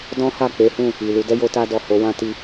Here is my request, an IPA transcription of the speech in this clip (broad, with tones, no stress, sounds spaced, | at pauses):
d ɔ̃˦ h a˦˨ k͡p e˨˦ h ũ˦˨ | i˨ l u˧ d ɛ˦ j o˧ t a˧ d ɔ˨ h o˨˦ w ã˦ t i˦